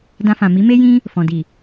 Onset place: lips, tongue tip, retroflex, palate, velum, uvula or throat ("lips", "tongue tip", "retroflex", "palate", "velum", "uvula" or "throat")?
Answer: tongue tip